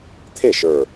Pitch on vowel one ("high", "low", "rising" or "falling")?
falling